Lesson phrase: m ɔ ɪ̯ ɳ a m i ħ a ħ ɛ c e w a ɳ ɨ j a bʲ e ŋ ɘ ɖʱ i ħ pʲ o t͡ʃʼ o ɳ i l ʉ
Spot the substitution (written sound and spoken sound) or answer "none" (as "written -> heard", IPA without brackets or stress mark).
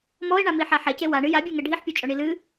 ʉ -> ɨ